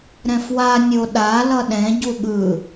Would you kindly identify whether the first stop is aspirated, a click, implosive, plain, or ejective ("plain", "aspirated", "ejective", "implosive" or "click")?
implosive